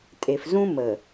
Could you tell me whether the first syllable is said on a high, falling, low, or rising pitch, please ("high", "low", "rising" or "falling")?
low